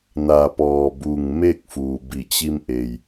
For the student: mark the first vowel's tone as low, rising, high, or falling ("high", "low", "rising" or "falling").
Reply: low